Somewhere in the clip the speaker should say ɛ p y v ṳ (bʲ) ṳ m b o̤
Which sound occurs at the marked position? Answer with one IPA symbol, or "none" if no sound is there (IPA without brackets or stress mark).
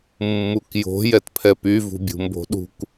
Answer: bʲ